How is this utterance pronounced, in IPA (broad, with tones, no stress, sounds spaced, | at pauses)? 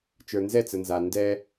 t͡ʃ ə˞˨ n z ɛ˦˨ t͡s ə˨ n z a˨ n d ɛ˦